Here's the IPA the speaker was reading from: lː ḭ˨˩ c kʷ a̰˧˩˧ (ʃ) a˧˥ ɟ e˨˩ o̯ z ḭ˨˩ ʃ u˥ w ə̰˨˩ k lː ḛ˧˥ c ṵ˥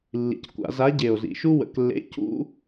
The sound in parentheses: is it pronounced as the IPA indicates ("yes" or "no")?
no